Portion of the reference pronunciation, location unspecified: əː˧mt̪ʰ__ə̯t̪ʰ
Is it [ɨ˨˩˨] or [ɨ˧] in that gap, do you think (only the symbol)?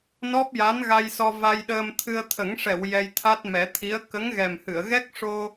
ɨ˧